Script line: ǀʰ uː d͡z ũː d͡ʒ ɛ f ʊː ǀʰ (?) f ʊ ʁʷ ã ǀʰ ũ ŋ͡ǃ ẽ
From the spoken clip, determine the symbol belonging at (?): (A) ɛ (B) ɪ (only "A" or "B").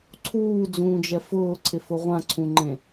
B